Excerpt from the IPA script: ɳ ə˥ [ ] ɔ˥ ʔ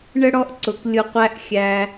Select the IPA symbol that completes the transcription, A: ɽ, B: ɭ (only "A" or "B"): A